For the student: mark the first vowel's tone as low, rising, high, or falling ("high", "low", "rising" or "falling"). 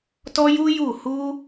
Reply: high